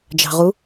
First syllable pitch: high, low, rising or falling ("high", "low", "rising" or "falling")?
low